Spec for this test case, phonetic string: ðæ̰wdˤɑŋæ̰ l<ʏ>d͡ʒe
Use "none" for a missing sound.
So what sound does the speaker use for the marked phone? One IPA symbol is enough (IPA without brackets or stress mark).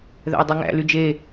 y